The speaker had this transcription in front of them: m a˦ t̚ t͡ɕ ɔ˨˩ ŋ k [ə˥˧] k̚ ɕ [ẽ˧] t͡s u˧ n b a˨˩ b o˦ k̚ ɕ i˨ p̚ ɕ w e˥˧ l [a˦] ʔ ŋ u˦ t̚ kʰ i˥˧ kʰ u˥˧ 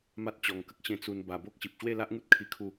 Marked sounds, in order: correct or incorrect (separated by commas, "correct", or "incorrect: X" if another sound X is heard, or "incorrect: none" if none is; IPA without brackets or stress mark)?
incorrect: ə˦, correct, correct